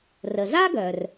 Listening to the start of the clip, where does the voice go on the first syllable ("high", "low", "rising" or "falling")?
low